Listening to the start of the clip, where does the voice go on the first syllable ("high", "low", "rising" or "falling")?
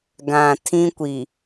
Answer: low